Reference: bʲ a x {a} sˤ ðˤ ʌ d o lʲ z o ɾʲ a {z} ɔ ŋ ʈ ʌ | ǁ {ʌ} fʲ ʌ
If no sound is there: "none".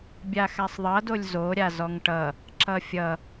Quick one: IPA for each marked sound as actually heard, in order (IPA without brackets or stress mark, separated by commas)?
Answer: a, z, ʌ